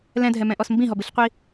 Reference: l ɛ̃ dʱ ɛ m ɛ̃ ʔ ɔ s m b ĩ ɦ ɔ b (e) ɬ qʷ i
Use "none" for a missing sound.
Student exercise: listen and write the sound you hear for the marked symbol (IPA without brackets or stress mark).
ɨ